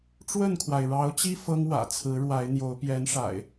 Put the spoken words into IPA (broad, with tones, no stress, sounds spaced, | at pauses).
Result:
ʈ͡ʂ w ə˥˨ n kʰ w a˩ ɪ̯ ɻ ɑ˨˦ ʊ̯ t͡ɕ i˦ f ɤ˦ ŋ w ä̰˨˩ t͡sʰ ɹ̩˨˦ ɻ w a˨˦ ɪ̯ n̪ j o˨˦ ʊ̯ p j ɛ˨˦ n ʂ a̰˨˩ ɪ̯